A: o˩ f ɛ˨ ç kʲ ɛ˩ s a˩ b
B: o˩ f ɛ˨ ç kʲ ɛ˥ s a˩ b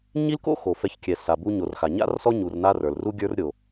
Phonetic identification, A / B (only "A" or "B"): A